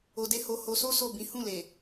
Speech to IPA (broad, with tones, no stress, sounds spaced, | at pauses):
o˧ d e˦ h o˧ h o˧ s o˦ s o˦˨ b ĩ˨˦ h ũ˦˨ l e˨